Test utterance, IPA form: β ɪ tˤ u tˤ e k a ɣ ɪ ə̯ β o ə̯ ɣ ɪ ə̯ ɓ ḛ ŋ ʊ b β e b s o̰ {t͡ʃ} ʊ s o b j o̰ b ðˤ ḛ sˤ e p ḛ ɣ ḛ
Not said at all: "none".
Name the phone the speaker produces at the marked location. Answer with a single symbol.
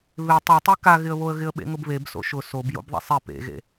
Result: ʃ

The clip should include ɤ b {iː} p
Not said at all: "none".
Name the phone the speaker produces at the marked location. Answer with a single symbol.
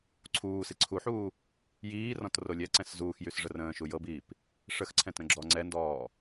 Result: iː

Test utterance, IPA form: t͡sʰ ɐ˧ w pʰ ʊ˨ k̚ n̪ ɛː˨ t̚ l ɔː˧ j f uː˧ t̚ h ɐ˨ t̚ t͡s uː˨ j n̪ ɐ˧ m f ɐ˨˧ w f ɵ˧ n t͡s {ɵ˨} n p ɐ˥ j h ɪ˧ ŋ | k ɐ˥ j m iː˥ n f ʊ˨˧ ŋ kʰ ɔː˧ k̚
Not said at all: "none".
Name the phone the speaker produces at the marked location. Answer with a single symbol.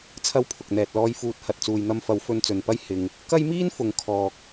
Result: ɵ˨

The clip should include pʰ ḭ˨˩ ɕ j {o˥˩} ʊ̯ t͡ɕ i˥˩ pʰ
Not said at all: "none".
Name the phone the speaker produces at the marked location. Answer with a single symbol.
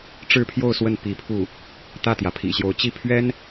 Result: o˧˥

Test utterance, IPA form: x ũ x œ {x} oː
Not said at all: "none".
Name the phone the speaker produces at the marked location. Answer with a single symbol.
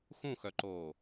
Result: ǃ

